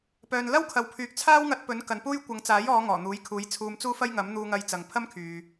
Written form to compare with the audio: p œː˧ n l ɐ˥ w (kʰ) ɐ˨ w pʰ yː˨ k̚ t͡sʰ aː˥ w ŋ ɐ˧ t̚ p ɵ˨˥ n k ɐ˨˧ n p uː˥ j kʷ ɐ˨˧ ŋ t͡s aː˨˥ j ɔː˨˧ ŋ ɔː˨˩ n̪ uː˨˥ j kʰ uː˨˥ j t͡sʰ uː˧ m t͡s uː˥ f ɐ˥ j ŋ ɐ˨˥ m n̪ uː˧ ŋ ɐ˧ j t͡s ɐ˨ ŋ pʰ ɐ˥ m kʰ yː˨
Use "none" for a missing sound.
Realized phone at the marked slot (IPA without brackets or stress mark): kʰ